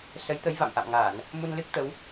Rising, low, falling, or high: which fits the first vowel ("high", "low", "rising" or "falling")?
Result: rising